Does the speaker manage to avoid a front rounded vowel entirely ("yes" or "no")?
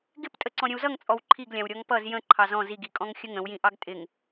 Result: yes